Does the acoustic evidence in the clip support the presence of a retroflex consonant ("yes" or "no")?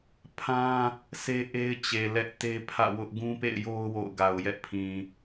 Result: no